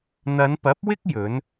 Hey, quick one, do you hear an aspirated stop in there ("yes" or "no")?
no